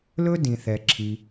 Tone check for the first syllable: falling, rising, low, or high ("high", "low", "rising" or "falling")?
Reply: high